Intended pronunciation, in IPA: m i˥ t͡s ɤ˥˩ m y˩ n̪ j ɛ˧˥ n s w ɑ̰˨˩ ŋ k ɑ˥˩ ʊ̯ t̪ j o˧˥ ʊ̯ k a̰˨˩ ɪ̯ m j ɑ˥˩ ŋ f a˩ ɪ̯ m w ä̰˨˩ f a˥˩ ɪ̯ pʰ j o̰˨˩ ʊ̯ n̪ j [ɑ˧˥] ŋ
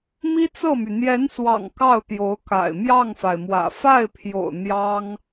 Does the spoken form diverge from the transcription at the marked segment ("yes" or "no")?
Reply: yes